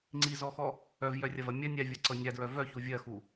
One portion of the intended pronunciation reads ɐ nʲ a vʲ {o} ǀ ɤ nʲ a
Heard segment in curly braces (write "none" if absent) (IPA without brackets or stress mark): ɤ